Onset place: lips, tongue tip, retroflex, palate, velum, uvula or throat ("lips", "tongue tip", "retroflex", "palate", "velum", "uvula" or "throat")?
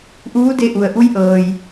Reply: throat